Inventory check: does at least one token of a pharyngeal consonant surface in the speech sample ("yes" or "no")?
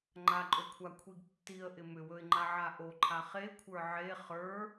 yes